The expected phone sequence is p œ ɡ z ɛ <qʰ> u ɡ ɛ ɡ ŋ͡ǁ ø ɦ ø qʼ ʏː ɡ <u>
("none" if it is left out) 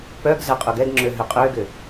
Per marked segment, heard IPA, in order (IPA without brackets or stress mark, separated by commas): qʼ, ʏ